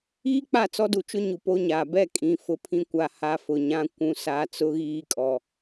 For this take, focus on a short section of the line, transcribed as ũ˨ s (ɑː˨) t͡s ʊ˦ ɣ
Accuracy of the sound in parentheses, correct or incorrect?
incorrect